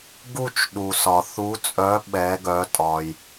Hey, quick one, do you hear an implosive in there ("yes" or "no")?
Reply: yes